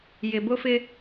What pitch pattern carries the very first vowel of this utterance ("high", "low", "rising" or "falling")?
low